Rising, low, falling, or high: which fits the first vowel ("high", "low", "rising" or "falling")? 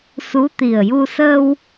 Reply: rising